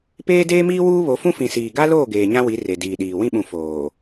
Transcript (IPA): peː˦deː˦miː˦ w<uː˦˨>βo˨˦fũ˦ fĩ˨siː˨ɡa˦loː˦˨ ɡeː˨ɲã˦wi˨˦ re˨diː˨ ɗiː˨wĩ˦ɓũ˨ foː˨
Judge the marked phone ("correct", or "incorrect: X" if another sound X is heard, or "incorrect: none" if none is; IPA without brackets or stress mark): incorrect: uː˦